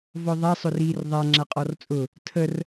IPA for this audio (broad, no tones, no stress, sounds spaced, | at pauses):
v ɔ ðˤ a sˤ ʊ r iː r ðˤ a ŋ͡ǁ a qʼ ɔ r t͡sʼ ʊ | tʰ ə r